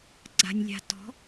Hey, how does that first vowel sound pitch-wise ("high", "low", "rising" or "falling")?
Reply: low